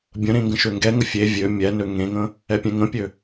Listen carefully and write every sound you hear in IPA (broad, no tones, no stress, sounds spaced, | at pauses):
bʲ ə̃ ɾ ẽ ŋ ɡ ə̃ ʃ ø ŋ ɡ ɛ ŋ ə fʲ e vʲ ø mʲ ɛ n ø ŋ ẽ ŋ ə̃ | ɛ pʲ ɛ̃ ŋ ə̃ pʲ ø